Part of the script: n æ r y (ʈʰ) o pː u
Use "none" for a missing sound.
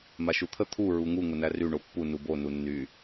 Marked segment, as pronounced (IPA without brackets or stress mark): ɳ